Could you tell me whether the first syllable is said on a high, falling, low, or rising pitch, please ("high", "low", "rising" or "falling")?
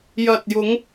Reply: low